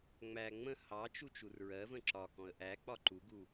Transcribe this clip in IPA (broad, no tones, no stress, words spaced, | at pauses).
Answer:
ŋ͡mæ ŋ͡mə̃ hɑt͡ʃu t͡ʃurɹɜvə̃ ǁɒkɔ̃ə̯ ʔæ k͡pɒǃuɡu